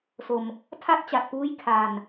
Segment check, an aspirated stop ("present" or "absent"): present